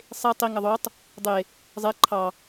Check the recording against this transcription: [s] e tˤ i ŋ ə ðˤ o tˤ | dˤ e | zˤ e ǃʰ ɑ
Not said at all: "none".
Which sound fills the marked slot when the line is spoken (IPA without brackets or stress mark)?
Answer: sˤ